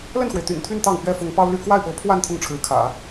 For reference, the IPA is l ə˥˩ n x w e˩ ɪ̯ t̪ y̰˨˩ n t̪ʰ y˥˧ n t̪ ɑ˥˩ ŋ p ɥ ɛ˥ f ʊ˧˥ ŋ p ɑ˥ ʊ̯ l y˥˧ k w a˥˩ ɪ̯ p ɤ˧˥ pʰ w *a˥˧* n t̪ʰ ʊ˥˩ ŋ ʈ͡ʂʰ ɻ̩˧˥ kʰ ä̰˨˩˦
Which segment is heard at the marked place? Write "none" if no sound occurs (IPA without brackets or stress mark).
a˥˧